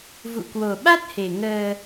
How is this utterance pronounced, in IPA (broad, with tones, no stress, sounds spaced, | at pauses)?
v ṵ˧˨ k w o˨˩ ɓ a˦˥ t̚ h e˨˩ ŋ əː˧